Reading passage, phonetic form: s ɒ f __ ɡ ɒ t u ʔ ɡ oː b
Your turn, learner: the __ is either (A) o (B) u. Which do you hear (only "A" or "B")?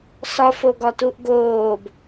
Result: A